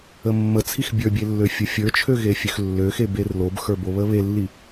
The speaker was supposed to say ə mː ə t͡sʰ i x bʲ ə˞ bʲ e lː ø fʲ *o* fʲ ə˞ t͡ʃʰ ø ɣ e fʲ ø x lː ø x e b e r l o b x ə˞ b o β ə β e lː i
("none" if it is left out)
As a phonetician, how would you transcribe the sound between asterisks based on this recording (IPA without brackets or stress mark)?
u